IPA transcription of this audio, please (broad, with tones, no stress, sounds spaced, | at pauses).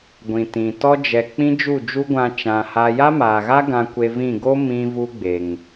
ɡʷ ĩ˨ t ĩ˨ t ɔ˦ d͡ʒ ɛ˨ k͡p ĩ˦ d͡ʒ u˦˨ d͡ʒ u˦ ɡʷ ã˧ t͡ʃ ã˧ h a˦ j a˦ m aː˨ ɣ a˦ ɡ ã˧ kʷ e˧ v ĩ˦˨ ɡ o˦ m ĩ˦ v u˦ ɡ͡b e˨ ŋ